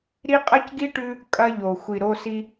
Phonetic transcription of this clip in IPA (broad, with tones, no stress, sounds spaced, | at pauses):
ɾ i˦ qʼ ɐ˦ c ɡ i˦ ʈ ʉ˦ | kʼ ɐ˦ ʎ o˨ xʷ i˨ ɾ o˦ s i˦